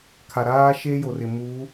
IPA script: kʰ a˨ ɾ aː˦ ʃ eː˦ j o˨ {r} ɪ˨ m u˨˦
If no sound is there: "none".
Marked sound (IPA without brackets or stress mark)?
r